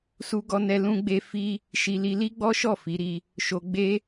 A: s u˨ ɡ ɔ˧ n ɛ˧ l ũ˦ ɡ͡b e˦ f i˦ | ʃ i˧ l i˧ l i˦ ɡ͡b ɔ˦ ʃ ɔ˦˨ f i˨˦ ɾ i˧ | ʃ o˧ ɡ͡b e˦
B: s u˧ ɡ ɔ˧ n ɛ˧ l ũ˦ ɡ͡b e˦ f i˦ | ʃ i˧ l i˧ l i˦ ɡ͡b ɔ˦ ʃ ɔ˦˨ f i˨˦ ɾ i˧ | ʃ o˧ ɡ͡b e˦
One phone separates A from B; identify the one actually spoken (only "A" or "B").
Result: B